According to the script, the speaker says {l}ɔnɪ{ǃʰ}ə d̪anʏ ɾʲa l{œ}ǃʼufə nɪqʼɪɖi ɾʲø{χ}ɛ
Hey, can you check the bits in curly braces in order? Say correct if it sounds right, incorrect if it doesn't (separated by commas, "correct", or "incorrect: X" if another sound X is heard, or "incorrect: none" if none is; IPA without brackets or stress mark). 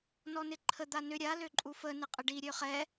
incorrect: n, correct, incorrect: ø, correct